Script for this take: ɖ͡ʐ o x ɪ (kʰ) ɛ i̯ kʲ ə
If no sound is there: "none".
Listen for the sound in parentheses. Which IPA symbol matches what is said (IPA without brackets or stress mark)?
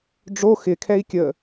kʰ